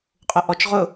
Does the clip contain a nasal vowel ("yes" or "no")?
no